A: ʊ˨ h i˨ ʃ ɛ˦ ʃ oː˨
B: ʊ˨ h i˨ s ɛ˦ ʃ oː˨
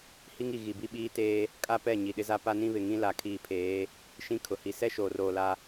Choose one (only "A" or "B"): B